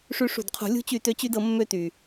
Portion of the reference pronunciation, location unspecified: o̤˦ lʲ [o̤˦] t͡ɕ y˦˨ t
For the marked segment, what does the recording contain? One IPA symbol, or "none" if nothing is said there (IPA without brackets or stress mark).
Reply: ṳ˦